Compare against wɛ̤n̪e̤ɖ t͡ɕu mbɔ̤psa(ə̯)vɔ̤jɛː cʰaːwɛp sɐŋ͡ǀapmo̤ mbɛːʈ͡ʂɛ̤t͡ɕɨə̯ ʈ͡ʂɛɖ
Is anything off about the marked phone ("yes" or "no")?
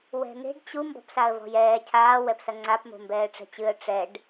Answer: no